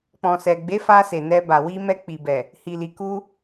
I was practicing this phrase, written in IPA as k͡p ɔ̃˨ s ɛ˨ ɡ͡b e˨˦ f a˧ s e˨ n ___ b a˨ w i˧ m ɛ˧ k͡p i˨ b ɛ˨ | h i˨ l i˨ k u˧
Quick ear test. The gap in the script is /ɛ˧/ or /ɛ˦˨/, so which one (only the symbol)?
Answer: ɛ˧